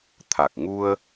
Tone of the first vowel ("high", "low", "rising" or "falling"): low